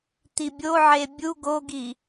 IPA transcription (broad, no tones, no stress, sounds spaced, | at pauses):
t̪ i bʲ o ʕ e bʲ u ɡ o ɡ i